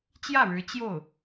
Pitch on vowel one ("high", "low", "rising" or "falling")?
falling